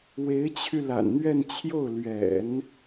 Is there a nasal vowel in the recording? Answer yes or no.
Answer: no